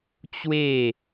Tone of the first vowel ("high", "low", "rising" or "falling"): falling